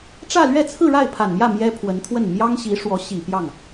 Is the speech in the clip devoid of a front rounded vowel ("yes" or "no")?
yes